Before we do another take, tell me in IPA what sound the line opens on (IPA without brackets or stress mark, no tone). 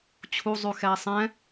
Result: t͡ɕʰ